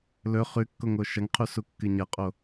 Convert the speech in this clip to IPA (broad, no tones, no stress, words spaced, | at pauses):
lɵ χʉkːoŋo ʃɐŋqʰusukːɨ ɲɐqʼo